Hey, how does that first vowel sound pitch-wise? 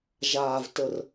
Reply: low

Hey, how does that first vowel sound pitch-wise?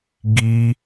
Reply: high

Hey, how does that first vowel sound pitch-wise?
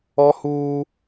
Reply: high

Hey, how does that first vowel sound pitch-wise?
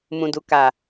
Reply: low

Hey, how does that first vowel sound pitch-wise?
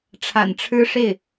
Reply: low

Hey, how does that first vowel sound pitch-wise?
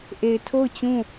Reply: low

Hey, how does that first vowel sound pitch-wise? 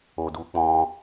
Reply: low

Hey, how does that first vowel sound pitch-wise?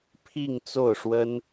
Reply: falling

